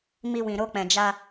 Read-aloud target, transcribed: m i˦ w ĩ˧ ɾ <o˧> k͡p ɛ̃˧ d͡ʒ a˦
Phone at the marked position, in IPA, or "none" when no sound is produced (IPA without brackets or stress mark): o˦